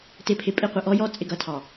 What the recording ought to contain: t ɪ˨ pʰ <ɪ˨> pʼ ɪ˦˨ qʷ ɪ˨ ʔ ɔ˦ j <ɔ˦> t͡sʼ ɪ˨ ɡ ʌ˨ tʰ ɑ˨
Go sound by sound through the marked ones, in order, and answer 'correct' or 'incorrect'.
correct, correct

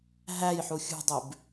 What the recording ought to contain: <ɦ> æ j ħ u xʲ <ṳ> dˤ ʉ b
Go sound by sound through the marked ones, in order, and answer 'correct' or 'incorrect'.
correct, correct

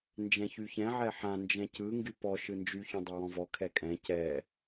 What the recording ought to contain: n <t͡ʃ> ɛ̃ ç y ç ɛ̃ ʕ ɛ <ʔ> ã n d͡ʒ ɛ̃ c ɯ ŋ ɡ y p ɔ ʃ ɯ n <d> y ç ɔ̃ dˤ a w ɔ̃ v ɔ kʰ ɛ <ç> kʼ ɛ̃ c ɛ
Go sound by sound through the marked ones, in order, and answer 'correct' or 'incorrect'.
incorrect: d͡ʒ, incorrect: ħ, incorrect: d͡ʒ, incorrect: none

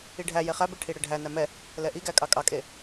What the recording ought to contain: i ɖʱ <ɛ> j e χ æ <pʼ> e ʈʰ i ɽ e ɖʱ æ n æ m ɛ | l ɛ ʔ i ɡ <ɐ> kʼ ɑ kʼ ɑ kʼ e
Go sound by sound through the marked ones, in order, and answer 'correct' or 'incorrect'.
incorrect: æ, incorrect: b, incorrect: æ

